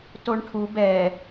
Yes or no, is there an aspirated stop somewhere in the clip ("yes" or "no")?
yes